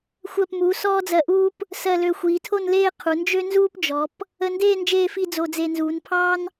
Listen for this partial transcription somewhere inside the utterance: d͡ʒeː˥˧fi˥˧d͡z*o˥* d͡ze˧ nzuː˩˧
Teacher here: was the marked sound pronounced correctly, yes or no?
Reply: no